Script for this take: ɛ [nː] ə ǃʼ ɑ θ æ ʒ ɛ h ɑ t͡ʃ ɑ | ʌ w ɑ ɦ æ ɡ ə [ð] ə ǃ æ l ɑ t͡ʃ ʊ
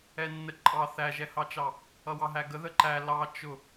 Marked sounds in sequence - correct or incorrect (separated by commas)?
correct, correct